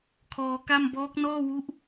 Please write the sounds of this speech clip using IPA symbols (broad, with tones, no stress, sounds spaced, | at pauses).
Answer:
kʰ ɔː˧ k a˥˩ m b ɔː˦˥ k̚ n ɔː˥˩ w u˦˥ ʔ